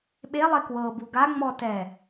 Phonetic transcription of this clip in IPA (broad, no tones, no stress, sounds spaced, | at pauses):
ɓ e lˠ e k w ɤ b u ɡ a ŋ͡m ɔ t ɛ